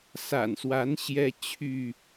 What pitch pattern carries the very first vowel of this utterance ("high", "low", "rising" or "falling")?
low